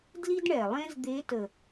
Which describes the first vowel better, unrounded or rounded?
unrounded